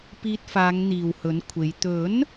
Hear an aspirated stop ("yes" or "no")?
yes